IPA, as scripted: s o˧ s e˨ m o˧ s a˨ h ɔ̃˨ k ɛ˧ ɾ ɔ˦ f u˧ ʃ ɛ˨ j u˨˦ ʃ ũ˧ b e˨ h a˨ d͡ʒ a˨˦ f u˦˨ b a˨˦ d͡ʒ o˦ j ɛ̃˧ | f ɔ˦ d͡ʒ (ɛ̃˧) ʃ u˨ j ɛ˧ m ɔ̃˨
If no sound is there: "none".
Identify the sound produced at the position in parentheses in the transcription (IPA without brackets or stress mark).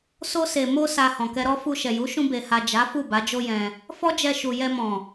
ɛ˧